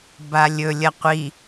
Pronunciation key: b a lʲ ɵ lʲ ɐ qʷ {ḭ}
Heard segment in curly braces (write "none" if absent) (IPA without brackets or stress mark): i